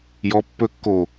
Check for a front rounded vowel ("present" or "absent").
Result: absent